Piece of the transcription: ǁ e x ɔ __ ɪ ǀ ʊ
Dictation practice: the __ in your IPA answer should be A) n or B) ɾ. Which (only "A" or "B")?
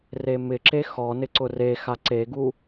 A